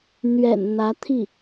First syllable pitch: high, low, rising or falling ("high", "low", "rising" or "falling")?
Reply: low